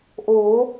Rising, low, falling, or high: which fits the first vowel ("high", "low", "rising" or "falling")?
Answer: rising